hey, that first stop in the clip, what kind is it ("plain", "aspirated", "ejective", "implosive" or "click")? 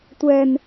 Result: plain